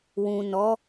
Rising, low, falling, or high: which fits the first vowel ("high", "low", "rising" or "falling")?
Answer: low